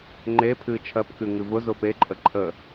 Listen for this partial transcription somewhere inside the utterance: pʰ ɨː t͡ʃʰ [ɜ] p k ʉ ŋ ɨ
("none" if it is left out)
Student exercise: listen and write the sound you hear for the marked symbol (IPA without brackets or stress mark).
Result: ɜ